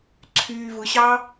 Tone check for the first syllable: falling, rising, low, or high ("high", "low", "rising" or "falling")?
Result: low